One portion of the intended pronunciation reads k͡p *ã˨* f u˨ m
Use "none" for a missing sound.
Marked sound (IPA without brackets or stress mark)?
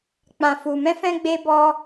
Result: ã˨